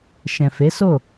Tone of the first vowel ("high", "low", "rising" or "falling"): low